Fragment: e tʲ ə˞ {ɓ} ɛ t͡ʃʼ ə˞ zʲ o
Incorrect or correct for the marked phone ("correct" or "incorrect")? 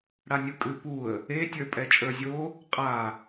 incorrect